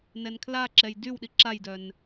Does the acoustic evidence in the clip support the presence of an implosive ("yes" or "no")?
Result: yes